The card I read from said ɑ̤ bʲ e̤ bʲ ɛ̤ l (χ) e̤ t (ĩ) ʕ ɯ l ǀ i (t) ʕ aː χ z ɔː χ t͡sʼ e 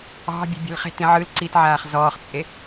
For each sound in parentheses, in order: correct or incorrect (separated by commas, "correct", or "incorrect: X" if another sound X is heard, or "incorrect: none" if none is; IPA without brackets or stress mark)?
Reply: correct, correct, correct